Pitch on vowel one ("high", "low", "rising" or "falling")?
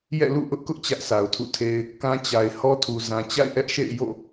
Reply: falling